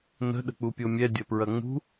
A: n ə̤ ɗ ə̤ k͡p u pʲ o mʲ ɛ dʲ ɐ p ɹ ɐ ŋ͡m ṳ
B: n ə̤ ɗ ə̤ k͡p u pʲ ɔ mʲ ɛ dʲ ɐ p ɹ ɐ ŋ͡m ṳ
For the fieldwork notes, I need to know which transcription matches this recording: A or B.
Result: A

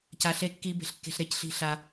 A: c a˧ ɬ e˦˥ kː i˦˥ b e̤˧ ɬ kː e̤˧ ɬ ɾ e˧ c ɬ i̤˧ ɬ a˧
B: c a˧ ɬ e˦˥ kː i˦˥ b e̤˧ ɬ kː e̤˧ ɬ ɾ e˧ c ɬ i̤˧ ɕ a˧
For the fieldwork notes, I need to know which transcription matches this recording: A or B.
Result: A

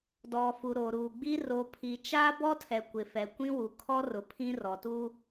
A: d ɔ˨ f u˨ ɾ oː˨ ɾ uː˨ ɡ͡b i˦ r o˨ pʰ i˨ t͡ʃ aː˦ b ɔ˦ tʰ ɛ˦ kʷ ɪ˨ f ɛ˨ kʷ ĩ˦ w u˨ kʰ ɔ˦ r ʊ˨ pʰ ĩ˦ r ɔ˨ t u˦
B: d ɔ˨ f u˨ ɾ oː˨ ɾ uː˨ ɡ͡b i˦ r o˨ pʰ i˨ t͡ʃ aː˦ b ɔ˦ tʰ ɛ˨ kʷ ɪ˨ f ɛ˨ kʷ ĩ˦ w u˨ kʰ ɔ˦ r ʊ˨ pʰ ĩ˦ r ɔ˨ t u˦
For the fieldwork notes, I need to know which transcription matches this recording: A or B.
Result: B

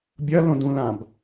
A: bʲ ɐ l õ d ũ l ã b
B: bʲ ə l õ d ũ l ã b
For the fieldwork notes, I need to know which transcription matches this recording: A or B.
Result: A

